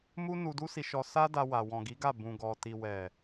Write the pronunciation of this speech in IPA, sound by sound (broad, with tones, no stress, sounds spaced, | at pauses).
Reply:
m u˦ n u˧ d u˦ s i˧ ʃ ɔ˧ s a˦ d a˧ w a˨ w ɔ̃˨ ɡ i˨˦ ɡ a˦˨ b ũ˨ ɡ ɔ˨ t i˨ w ɛ˨